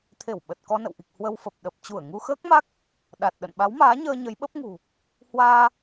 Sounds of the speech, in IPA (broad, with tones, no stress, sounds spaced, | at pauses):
t̪ʰ e˧˩ w ɓ ə˨˩ t̚ k ɔ˧ n ə̰˧˨ w ʔ i˨˩ k̚ h w ə˧ w f ə˨˩ p̚ ɗ ə˨˩ p̚ t͡ɕ u˧˩ ə̯ ŋ u˧ x əː˦˥ k̚ m a˦˥ k̚ | ɗ a˨˩ t̚ ɗ ə̰˧˨ n ɓ a˨˦ w m aː˨˦ ɲ əː˧ ɲ ə˨˦ j ɓ ə˦˥ p̚ ŋ ṳ˨˩ | h w aː˧